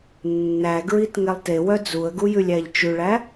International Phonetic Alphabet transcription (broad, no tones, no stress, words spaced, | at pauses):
nːæɡɹit ŋɛlˠtewœ d͡zuə̯ɡujʉlʲ æʎt͡ʃʉɭæ